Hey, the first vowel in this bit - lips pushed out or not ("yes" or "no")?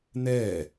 no